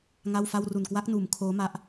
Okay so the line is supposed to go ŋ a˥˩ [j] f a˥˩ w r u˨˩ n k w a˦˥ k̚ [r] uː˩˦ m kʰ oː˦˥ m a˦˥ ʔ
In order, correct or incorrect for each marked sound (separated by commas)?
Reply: incorrect, incorrect